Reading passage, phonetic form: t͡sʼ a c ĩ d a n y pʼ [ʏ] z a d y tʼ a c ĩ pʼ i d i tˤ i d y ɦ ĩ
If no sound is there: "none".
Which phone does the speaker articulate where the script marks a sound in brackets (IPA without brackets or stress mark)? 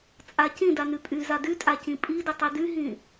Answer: y